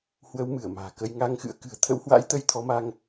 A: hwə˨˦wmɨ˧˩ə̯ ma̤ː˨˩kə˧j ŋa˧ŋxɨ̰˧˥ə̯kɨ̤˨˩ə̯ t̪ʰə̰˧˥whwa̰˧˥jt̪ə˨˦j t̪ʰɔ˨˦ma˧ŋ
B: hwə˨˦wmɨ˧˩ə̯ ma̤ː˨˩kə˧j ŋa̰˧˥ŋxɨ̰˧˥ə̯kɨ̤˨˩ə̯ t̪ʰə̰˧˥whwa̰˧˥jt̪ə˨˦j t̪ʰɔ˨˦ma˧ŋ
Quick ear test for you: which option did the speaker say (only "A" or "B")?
A